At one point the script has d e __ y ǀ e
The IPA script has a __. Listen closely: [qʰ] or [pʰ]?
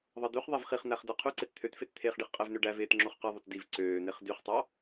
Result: qʰ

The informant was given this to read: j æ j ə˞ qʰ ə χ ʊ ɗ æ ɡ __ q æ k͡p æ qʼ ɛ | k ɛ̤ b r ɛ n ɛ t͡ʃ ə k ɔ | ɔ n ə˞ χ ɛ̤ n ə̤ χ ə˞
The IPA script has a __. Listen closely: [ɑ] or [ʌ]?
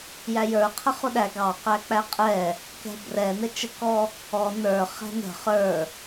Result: ɑ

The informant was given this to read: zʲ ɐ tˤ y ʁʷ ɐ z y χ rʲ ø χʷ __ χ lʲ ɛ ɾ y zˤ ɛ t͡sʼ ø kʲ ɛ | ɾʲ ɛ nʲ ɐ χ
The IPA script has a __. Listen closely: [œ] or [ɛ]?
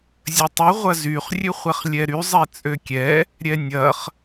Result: ɛ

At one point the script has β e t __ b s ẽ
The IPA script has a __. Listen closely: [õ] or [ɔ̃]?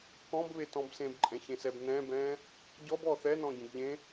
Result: ɔ̃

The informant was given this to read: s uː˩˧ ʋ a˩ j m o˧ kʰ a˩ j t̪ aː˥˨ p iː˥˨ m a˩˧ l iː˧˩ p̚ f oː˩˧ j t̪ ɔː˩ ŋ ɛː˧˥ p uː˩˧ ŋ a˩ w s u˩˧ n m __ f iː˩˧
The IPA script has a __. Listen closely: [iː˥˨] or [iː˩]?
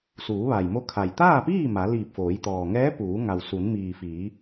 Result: iː˩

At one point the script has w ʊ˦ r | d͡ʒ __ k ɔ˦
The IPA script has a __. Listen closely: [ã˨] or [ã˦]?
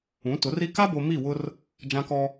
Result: ã˦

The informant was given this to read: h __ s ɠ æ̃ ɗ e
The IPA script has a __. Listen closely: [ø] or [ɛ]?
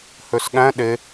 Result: ø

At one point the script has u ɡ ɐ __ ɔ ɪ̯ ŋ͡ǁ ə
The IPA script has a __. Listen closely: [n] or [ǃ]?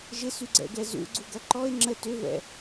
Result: ǃ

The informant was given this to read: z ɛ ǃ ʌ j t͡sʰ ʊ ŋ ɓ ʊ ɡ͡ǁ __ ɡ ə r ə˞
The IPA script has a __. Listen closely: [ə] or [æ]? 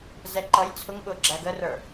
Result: æ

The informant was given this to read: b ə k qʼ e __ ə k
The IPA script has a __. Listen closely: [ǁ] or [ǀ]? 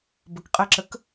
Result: ǁ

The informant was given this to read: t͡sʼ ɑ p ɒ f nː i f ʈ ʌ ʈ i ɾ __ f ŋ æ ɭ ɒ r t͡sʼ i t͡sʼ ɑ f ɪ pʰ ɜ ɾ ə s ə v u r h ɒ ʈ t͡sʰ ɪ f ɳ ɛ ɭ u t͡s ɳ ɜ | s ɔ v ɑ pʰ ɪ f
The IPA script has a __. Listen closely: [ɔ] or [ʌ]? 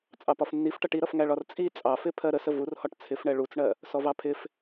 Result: ʌ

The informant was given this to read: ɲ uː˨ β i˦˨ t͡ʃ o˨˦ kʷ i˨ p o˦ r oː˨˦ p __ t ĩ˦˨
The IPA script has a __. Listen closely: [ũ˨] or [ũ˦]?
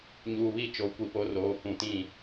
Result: ũ˨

